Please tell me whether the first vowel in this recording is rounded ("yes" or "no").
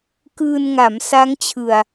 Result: no